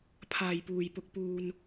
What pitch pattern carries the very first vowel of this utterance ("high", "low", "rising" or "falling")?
low